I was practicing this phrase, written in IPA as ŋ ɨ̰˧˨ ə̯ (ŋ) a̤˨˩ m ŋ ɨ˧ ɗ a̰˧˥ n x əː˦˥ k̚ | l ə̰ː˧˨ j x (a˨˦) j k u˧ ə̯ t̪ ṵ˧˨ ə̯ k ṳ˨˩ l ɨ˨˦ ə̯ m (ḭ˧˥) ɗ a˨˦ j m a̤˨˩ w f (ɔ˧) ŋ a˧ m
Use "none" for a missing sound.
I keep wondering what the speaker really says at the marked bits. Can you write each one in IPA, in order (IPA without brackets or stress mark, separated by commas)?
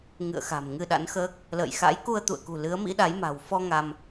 x, a̰˧˥, ḭ˧˥, ɔ˧